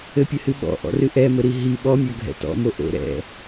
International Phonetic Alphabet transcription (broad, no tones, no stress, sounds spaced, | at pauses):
ɘ pʲ ɘ h ɨ ɓ ɔ̰ ʔ ɔ̰ r ɨ ʔ ɛ m ɘ ɾ i ɦ i ɓ ɔ mʲ ɔ ɡʱ ɛ̰ t ɔ̰ m o ʔ o̰ ɾ ɛ̰